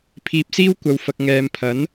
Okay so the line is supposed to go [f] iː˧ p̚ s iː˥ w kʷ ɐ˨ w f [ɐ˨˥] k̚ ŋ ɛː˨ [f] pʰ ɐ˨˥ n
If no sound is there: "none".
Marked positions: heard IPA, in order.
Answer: pʰ, ɐ˨, m

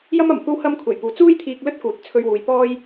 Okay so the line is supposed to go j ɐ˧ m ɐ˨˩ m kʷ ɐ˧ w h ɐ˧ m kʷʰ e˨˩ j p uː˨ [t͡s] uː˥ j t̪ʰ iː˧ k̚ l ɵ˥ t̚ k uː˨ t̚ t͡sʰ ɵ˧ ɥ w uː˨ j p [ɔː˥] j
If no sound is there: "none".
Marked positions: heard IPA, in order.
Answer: t͡s, ɔː˥

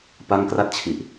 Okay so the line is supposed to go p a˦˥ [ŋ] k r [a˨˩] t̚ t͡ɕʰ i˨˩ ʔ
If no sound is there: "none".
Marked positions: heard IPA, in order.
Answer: ŋ, a˥˩

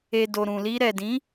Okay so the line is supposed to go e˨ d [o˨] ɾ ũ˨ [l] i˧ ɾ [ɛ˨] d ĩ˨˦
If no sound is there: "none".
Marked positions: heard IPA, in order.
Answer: o˨, l, ɛ˨

